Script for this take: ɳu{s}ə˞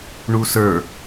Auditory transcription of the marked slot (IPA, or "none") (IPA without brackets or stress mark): s